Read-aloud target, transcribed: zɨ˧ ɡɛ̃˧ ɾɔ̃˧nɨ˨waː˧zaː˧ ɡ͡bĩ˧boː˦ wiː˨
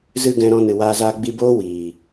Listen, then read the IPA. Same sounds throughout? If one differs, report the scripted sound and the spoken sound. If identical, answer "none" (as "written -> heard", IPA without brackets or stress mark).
ĩ˧ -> i˧